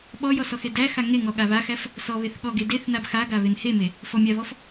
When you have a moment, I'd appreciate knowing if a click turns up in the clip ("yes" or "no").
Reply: no